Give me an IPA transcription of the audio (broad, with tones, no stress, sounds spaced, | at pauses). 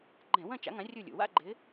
ɡ͡ǃ ɛ̃˧˩˧ w ɐ̃˥˧ t͡ʃ a̰˨˥ ŋ ã˨˥ rʲ u˧˩ lʲ ṵ˩ w a̰˥˧ ɡ͡ǃ ɪ˨˥